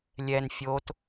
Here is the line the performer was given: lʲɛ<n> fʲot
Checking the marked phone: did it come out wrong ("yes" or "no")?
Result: no